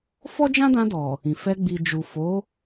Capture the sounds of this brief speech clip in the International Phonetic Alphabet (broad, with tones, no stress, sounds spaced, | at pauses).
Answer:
f ɔ˦ d͡ʒ ã˦ d ã˧ d ɔ˨ | ĩ˨ f ɛ˧ ɡ͡b i˨ d͡ʒ u˨ f o˨˦